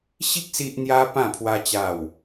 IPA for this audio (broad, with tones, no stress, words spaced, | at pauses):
ɕi˦k̚ si˦ʔ n̪ja˦ pã˥˧pʰwa˦ t͡ɕa˥˧w